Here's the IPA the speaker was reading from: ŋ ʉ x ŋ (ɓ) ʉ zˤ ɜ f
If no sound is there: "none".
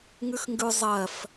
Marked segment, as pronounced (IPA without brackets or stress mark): ɡ